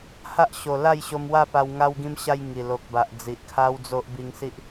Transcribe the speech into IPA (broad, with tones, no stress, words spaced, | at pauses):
ha˦ʔɕo˨˩ la˥˧jɕo˧mwa˥˧pa˧w ŋa˧wɡĩ˧mɕa˧j ŋi˨˩lo˨k̚ba˨ʔ d͡zi˨ʔkʰa˦wd͡zo˦ʔ bi˧ŋsi˦ʔ